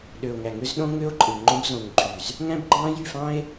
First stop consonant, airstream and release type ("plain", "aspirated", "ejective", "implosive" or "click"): implosive